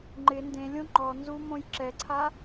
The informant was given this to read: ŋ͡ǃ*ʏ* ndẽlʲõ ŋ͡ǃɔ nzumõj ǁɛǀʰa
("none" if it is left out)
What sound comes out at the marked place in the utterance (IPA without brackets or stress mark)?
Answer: ɪ